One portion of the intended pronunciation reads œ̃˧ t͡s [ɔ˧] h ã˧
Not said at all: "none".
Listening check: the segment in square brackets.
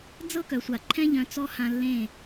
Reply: ɔ˧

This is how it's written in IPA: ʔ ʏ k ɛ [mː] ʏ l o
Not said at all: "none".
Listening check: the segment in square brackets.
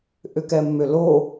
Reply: mː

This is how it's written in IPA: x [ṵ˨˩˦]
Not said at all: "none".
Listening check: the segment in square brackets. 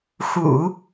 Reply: ṵ˨˩˦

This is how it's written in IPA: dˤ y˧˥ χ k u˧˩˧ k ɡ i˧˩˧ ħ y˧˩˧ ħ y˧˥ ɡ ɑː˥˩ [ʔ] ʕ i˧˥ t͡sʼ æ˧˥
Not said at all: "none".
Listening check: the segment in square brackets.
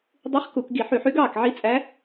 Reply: k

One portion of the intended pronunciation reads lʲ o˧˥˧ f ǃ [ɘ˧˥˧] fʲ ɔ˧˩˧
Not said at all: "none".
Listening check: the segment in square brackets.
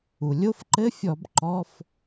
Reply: ɘ˧˥˧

